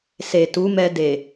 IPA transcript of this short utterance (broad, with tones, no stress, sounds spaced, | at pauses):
s e˨ t u˨˦ m ɛ˧ d e˨